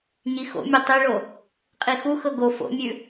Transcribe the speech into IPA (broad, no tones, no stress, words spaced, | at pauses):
ɲixo̰mʲɤ tˤiɭo | qʼixuxɤ ɡo fo̰mʲʉ